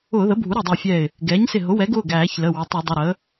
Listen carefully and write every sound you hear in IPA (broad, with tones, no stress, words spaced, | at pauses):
ʊː˧˩˧ðə˩˥bʱu˩˥ ɾɛ˧˩dˤʌ˧˩ɪ̯fʲɛː˧˩ɪ̯ | ɡɛː˩˥ɲsɪ˧˩ ɦʊ˩˥wɛ˩˥ɡʊː˩˧˩ɡ æː˧˩˧çlə˩˧˩ wə˩˧˩tˤu˧˩˧dˤɪ˩˧˩ ɾəː˩˥